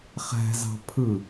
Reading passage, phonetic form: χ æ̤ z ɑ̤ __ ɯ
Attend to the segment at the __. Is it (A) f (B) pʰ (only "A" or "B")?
B